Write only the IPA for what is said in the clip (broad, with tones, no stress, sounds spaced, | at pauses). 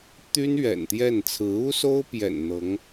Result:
t̪ y˥ n ɥ ɛ̰˨˩ n t̪ j ɛ˥˩ n t͡sʰ ɹ̩˧˥ u˥ s o˥ ʊ̯ p j ɛ̰˨˩ n n̪ ɤ˧˥ ŋ